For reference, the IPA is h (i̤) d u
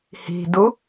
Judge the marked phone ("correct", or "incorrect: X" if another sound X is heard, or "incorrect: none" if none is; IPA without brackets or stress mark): correct